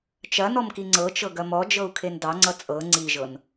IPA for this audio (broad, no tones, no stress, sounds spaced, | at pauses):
t͡ʃ ɐ n ɔ m k i ŋ͡ǀ ɤ t͡ʃ ɤ ɡ ɐ m ɔ d͡ʒ ɤ u̯ kʰ e n d ɑ ŋ͡ǀ ʌ t͡sʼ ɤ ŋ͡ǀ i ʒ ɤ n